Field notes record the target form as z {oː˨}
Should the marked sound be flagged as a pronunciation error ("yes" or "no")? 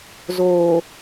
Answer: no